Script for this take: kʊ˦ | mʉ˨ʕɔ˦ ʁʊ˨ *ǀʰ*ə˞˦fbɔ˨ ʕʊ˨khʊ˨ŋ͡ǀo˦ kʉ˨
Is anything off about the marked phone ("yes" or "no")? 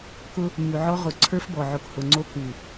no